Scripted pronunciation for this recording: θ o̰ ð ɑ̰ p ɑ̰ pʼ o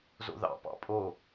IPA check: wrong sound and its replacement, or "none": θ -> z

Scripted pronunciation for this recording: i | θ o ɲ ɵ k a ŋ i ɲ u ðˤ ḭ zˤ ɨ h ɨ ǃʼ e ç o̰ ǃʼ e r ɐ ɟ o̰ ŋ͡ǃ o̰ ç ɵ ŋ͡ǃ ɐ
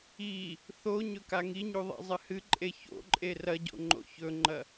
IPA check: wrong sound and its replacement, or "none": none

